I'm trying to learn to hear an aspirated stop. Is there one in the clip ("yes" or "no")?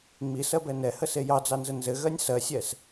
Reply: no